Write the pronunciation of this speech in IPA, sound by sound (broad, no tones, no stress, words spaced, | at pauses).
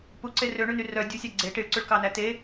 puǀe røɳʉny rœ dʲusʲæ ɡ͡ǀe ʈiɭǀʉɭkɑnæ te